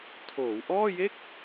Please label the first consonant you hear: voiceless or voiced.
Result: voiceless